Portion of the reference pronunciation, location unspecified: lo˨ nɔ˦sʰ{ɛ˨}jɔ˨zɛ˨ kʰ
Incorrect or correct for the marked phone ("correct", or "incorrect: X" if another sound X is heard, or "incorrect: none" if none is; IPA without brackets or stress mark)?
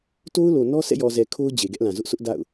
incorrect: ɛ̰˦˨